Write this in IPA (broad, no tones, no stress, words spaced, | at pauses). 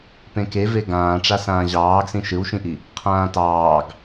pẽkeve ɡãːʈ͡ʂa sãːʑɑːɡsĩ ʃɯwʃĩʔi | qʰãːtɑːɡ